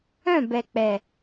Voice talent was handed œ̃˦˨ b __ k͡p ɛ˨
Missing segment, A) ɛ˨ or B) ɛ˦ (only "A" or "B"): A